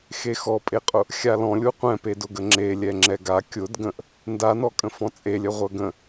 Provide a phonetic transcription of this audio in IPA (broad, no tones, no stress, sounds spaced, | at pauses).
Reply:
x e x ɔ pʼ e qʼ ʊ | xʲ a l ɔ̃ lʲ u qʷ ɛ̃ p e d ʊ ɡ ə ŋ͡ǁ e lʲ ɛ ŋ͡ǁ ɛ ɡ a kʲ ʊ d ɡ ə̃ ʔ | n d a n ɔ kʼ ə̃ f ɔ̃ t͡sʼ e lʲ œ ʁʷ œ ɡ ə̃